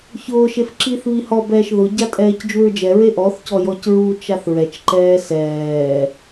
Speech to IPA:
çʊːʃef ǁiːθβihɔbɛːʃ ðʊɟa tʼɛːcd͡ʒuɹd͡ʒɛ ɹeʔɔθcɔ jɔcɹut͡ʃaθ ɹɛt͡ʃǃɛː sɛː

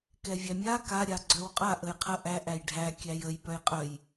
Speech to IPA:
kɛvʲæmʲa ka ɾʲaɡ͡ǀœwqʼa ʔəjqʰə ʔæ ʔæjɖʱæ kʲæjəj pœjqʼœj

